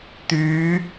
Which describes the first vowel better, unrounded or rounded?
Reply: rounded